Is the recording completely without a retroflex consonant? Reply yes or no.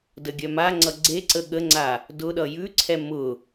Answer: yes